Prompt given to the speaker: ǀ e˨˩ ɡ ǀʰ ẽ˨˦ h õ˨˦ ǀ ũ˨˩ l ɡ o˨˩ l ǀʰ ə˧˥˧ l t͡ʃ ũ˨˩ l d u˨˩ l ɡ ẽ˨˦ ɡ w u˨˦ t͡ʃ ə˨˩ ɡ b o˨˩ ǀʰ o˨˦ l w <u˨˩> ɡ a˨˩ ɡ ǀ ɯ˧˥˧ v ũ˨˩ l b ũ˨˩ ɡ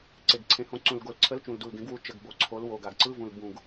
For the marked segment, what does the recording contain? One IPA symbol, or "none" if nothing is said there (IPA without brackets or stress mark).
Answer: o˨˩